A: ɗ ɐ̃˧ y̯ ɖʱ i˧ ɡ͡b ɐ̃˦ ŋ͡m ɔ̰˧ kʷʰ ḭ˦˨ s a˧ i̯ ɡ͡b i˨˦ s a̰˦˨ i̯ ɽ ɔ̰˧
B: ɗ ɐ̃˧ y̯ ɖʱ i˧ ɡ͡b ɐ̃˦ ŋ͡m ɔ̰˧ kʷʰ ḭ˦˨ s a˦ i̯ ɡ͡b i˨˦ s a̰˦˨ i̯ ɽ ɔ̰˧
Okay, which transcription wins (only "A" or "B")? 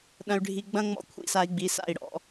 A